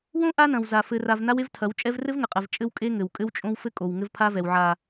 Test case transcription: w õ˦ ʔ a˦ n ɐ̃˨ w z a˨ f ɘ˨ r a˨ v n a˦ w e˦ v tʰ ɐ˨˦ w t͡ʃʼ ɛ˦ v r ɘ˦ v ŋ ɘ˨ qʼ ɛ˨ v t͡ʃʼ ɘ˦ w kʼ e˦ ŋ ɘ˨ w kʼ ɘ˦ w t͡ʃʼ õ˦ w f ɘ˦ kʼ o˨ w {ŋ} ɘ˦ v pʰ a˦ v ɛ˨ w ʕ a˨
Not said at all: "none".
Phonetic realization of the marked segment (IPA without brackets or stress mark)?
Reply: ŋ